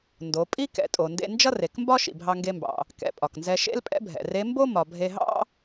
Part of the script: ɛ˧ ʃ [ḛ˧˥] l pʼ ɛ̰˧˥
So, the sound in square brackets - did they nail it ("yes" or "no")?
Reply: no